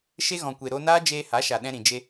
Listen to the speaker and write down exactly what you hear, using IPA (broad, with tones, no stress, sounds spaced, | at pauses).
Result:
ʃ e˧ ɣ ɔ̃˨ kʷ e˨ ɾ o˧ n aː˦ d͡ʒ eː˧ h a˨˦ ʃ a˨ ɗ ɛ̃˧ ɾ ĩ˨ d͡ʒ e˧